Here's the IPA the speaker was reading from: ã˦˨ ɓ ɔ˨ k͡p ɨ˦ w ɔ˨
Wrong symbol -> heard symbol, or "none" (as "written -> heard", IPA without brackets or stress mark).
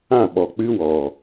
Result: none